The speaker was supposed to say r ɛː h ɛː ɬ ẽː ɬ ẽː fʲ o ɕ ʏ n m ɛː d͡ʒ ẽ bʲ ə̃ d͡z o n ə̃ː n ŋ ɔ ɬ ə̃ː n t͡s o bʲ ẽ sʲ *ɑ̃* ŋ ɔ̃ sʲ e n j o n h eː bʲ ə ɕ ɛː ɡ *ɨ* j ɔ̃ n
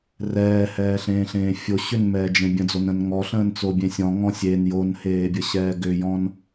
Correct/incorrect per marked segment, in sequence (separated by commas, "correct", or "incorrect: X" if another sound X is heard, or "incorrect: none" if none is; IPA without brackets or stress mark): incorrect: ɔ̃, incorrect: ʏ